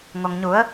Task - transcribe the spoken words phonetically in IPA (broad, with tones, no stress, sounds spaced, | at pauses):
ŋ o˩ ŋ ɲ u˩˧ ə̯